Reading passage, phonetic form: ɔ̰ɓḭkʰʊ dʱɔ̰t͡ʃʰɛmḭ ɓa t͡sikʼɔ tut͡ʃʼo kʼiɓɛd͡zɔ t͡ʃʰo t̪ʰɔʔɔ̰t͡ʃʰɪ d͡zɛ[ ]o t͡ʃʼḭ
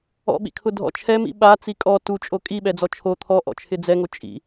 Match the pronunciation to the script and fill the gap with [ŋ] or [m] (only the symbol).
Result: ŋ